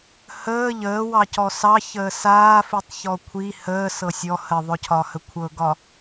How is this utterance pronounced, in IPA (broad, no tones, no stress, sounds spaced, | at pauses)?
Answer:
h əː ʎ əː w ɑ c ɔ s ɑ ç əː s aː f i tˤ ç ɔ kʷʰ i h əː s ɤ sʲ ɔ h ə ðˤ ɵ cʰ ɒ h ə kʷʰ ɤ ɡ ɒ